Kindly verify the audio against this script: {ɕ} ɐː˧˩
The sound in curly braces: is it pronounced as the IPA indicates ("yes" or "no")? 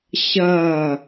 yes